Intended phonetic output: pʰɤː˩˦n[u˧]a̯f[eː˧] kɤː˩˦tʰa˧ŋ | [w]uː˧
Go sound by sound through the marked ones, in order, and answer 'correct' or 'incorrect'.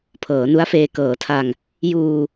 incorrect, correct, incorrect

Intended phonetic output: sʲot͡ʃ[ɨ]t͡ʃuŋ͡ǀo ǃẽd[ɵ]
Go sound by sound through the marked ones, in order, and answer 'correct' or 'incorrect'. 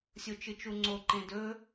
correct, correct

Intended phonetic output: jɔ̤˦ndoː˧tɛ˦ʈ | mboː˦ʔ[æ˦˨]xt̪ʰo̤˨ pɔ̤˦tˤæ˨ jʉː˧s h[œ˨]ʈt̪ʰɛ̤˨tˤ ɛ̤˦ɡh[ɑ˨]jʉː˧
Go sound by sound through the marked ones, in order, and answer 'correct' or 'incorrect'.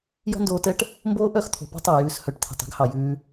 incorrect, correct, correct

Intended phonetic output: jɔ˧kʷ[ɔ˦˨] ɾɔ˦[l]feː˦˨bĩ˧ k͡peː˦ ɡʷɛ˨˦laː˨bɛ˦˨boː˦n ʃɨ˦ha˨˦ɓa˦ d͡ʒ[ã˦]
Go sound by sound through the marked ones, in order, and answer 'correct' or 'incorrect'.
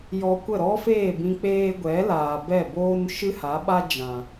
incorrect, incorrect, incorrect

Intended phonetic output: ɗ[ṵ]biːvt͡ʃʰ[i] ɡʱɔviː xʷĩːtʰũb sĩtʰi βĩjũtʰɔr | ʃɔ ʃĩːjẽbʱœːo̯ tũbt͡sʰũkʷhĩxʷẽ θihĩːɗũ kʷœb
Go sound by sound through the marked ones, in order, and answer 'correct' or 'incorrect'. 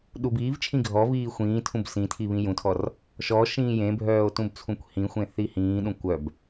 incorrect, incorrect

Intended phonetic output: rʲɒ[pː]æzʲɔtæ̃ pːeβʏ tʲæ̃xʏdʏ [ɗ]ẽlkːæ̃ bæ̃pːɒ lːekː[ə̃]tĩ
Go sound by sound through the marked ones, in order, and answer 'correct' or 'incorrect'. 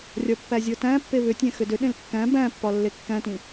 correct, correct, incorrect

